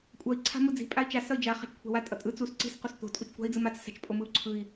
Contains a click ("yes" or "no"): yes